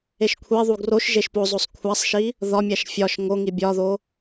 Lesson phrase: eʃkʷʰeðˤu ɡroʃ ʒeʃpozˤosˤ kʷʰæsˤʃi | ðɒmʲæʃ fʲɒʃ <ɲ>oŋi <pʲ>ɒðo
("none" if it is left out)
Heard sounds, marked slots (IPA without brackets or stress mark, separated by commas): ŋ, bʲ